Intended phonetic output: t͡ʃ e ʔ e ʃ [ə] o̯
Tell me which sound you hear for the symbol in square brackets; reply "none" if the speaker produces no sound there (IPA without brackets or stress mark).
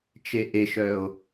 œ